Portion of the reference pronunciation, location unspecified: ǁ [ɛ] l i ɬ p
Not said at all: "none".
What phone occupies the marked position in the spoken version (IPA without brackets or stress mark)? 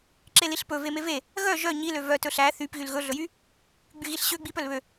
e